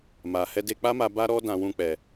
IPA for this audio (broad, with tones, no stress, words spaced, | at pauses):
ma˨ hɛ˧de˧k͡pa˦ma˧ ba˦ɾɔ˦ dã˧wũ˧k͡pɛ˨